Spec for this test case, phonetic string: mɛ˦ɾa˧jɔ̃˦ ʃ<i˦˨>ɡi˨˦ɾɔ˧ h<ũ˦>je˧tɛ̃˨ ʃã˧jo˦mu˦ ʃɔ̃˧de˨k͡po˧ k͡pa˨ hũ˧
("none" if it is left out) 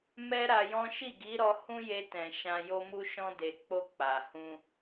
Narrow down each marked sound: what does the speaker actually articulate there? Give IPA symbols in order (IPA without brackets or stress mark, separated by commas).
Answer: i˦˨, ũ˦